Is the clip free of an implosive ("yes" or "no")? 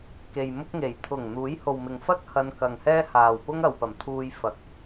yes